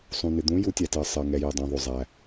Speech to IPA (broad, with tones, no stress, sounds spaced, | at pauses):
sˤ ũ˩ n ɪ˩ d̪ ũ˨˦ j u˨˦ tʲ æ˩ t ɜ˩ sˤ ɜ˩ ŋ ɛ˩ j ɜ˩ dˤ ũ˩ ðˤ o˩ zˤ æ˩